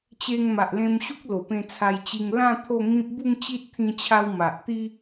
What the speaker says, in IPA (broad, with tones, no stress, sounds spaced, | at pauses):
t͡ɕ e˧ ŋ m a˨ ʔ l ẽ˧ m ɕ u˦ k̚ l o˨˩ p ẽ˧ t͡sʰ a˧ j t͡ɕ i˧ ŋ l ã˥˧ t̪ʰ o˥˧ ŋ ĩ˦ p̚ b u˥˧ ŋ t͡ɕ i˦ t̚ t̪ʰ ĩ˧ t͡ɕʰ a˧ w m a˨ ʔ t̪ i˦